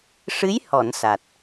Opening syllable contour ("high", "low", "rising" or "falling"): rising